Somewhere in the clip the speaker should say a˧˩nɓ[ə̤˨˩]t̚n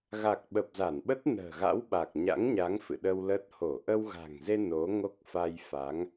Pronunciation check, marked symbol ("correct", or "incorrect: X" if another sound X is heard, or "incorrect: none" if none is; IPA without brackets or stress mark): incorrect: ə˦˥